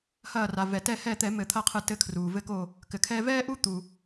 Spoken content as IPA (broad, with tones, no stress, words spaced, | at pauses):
hɐː˧˩ra˩vɛ˩ tɛ˧˩hɛː˧˩t̪ɛ˧˩˧ mɘ˧˩˧t̪ʰɐ˦qʰɨ˧˩ tɘ˦kʰruː˩ vɘ˧˩ko˧˩ | kɘ˩kʰɛː˦ vɛː˦ʔu˦t̪u˩